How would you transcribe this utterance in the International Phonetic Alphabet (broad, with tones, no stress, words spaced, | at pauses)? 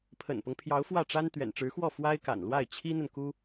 pʰə̰˨˩npɤ˦ŋpʰjɑ˧˥ʊ̯ fwä˥˩ʈ͡ʂa˥n t̪ɥɛ̰˨˩nʈ͡ʂɻ̩˧˥xwɔ˥˩ fwa˥ɪ̯ka̰˨˩nlwa˥˩ɪ̯ t͡ɕʰi˥n̪ə˨nku˥